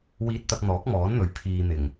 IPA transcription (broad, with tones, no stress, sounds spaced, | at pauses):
w iː˧ t̚ t̪ ɐ˧ k̚ n̪ ɔː˨˥ k̚ m ɔː˨˥ n n̪ ɵ˨˥ ɥ pʰ iː˨ n̪ ɪ˨˩ ŋ